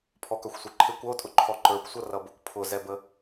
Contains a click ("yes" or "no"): yes